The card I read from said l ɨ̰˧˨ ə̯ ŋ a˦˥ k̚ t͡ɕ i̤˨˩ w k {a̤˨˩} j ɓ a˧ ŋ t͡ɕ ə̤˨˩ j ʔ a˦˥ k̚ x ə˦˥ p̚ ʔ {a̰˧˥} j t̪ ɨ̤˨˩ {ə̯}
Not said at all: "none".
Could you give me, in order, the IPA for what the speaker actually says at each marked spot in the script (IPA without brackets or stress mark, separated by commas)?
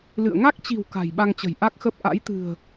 a̤˨˩, a̰˧˥, ə̯